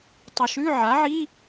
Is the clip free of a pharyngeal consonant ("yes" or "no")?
no